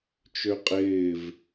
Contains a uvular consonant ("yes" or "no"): yes